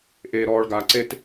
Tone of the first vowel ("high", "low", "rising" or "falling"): low